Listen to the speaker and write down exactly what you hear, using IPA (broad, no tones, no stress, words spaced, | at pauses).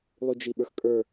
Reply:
lˠyd͡ʒiɓə˞xkʼə˞